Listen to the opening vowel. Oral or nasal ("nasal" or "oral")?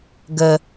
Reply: oral